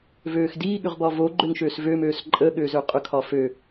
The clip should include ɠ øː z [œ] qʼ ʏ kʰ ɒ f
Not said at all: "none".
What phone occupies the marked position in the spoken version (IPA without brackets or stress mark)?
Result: ø